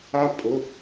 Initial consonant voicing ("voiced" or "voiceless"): voiceless